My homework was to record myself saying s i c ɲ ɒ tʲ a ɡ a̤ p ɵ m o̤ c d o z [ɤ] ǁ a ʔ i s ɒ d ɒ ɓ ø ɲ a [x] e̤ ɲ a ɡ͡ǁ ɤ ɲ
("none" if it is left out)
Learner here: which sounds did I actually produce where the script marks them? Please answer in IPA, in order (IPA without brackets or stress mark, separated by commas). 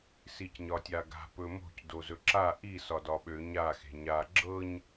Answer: ɵ, x